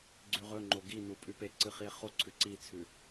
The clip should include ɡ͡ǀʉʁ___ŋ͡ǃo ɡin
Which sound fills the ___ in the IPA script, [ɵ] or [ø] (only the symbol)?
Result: ɵ